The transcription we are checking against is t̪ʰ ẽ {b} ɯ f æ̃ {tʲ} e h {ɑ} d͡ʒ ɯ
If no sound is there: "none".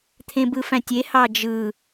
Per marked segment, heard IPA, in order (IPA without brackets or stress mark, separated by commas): b, tʲ, ɑ